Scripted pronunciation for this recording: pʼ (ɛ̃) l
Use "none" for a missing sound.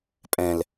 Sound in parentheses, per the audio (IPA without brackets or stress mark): ɛ̃